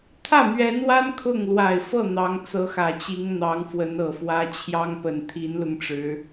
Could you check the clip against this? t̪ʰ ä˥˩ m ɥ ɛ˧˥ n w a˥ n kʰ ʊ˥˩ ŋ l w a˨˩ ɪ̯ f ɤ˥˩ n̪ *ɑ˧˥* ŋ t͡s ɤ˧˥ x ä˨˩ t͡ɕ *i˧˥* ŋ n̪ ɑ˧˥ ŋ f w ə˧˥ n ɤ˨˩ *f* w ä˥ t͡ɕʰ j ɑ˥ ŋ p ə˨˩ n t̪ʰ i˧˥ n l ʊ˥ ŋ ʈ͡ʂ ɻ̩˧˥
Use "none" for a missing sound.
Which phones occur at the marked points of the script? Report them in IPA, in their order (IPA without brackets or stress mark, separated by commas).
ɑ˧˥, i˧˥, f